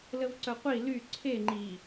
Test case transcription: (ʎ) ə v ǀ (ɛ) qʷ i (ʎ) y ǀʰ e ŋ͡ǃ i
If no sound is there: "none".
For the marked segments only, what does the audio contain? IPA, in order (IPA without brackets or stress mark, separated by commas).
l, œ, l